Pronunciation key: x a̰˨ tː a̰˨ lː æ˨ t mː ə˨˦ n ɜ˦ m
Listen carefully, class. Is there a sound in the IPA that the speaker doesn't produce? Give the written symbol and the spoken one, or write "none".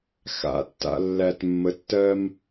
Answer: n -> tː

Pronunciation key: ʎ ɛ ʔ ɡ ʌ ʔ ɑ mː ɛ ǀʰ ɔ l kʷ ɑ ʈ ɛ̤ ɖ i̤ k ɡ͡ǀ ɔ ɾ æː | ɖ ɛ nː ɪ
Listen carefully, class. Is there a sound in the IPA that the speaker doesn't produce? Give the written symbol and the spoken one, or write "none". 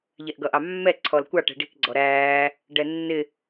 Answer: none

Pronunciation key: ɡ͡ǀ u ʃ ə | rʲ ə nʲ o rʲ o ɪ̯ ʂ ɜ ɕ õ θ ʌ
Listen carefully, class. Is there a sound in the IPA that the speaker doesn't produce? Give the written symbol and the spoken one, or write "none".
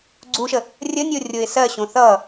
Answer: ʂ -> s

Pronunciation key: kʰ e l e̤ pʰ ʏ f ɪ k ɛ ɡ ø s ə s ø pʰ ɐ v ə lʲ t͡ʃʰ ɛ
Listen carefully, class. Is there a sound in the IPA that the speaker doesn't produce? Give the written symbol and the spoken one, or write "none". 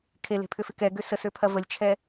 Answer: none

